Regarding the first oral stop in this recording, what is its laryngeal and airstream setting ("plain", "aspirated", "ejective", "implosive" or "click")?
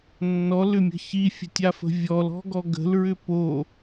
plain